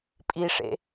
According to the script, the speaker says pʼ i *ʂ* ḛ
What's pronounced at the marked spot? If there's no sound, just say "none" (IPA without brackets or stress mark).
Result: ʂ